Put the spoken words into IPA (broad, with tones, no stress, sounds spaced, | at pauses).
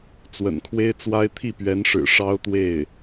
t͡s w ə̰˨˩ n kʰ w e˥ ɪ̯ t͡s w a˥ ɪ̯ t̪ʰ i˥˩ p ɥ ɛ˧˥ n ʂ ɻ̩˨˩ ʂ ɑ˥ ʊ̯ t̪ w e˥˩ ɪ̯